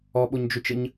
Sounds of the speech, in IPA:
ɔ ɓ o ɲ d͡ʒ ø t͡ʃ ə ɲ

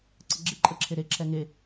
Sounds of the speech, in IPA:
ǀ ə ɡ͡ǁ e ǃʼ ə ǁʰ e ɾ e ǁʰ ɛ ŋ e

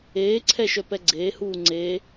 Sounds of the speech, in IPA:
eː ǀʰ ɛ ʃ œ p ɛ ɡ͡ǀ eː h uː ŋ͡ǀ eː

